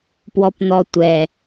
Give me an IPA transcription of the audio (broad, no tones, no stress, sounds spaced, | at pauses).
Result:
p w ɔ p n̪ ɔ tʷ ɛ